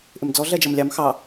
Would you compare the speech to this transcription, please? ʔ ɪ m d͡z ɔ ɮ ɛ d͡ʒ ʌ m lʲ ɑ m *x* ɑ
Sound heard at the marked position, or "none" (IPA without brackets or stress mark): x